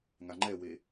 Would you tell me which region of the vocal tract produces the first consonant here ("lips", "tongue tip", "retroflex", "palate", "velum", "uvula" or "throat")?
velum